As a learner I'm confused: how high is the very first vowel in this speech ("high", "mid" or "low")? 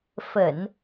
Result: mid